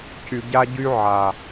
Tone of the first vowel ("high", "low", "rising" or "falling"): low